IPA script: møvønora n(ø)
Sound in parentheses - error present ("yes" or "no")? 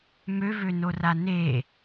yes